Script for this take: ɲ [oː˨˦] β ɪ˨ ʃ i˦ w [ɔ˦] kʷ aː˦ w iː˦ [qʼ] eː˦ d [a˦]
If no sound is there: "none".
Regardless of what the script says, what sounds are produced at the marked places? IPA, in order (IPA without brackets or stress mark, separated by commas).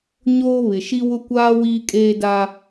oː˦, ʊ˦, kʼ, a˦